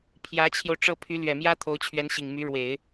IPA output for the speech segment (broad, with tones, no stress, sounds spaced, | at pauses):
pʰ j ä˧˥ t͡ɕʰ j o˧ ʊ̯ ʈ͡ʂ ɤ˥˩ pʰ y˧˥ l ɥ ɛ˨˩ m j ä˥ t̪ʰ o˧˥ ʊ̯ t͡ɕʰ ɥ ɛ˧˥ n ɕ i˨˩ ŋ m y˧˥ ɻ w e˨˩˦ ɪ̯